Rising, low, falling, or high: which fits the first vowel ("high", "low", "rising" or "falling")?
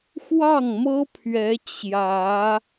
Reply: falling